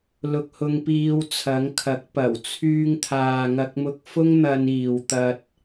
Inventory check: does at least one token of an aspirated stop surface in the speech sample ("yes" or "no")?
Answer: yes